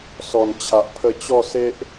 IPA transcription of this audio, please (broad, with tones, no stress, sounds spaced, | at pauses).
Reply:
s ɔ˨˩ n t͡ɕʰ a˨ ʔ pʰ ə˧ t͡ɕ ɔ˥˧ s e˦ ʔ